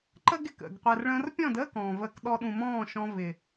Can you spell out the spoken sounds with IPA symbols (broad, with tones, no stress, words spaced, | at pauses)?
ǃə˦ɡ ɪ˨kə̰˨ɡ qʷɛ˨rɭə̃ː˧rpʲɔ̃˦˨dəː˦ kɔ̃ː˨vəː˧k ɗɔ˧ɗũ˨mɔ̃ː˦˨ ʃɔ̃˧vɪ˨